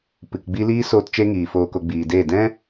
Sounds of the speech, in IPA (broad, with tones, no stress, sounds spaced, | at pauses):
p ɨ˨ k ɡ͡b i˦ l iː˦ s oː˦ t t͡ʃ e˦ ŋ iː˨ f oː˨ k o˨ ɡ͡b iː˨ d eː˦˨ d ɛ̃˦